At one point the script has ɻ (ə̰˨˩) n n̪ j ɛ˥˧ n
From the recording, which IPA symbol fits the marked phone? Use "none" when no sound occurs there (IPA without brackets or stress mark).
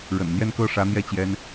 ə̰˨˩